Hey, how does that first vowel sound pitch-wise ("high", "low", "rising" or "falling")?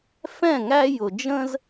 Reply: falling